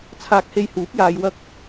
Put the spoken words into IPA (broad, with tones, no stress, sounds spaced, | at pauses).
t͡sʰ aː˧ k̚ h e˧ j h uː˨˥ p̚ j aː˧ j w ɐ˧ k̚